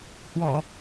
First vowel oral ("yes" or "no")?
yes